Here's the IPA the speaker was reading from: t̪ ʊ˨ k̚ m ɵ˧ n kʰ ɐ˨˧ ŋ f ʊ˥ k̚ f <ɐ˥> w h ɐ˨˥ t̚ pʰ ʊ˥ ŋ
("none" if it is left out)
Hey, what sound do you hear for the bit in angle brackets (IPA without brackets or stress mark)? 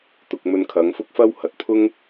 ɐ˥